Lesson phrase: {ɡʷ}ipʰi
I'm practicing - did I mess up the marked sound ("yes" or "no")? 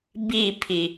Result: yes